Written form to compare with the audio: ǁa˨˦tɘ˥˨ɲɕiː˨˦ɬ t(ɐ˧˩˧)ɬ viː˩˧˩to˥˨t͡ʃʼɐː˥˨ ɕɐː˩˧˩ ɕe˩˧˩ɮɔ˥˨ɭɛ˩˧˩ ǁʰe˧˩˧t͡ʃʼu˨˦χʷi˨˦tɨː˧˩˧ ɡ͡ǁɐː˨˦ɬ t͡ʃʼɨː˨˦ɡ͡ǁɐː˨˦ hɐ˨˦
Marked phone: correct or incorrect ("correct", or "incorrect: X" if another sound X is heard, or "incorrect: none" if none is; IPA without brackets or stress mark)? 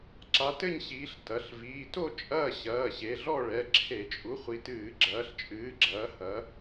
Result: incorrect: ɐ˩˧˩